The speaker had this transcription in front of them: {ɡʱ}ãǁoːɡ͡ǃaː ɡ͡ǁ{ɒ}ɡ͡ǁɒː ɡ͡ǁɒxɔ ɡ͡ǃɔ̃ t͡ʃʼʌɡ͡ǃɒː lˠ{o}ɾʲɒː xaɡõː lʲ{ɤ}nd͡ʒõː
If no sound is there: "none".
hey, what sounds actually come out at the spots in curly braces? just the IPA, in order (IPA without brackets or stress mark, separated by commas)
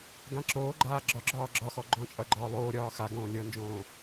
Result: ɡ, ɒ, oː, ɤ